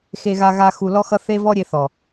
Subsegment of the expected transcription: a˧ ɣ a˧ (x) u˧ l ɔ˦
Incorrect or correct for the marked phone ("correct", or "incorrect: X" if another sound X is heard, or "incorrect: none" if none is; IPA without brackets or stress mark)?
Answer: correct